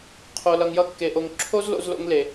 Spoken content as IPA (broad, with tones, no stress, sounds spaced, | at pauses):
qʰ o˧ l ʌ˧ ŋ j ʌ˥ kː e˧ ʔ o˧ ŋ ǁʰ o˥ z l o̰˧ z l o̰˧ ŋ l e˩